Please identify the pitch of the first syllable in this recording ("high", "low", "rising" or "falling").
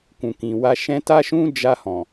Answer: low